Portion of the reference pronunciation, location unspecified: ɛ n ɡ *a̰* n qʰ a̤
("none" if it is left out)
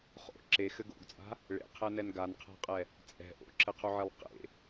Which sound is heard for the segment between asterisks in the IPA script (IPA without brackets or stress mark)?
a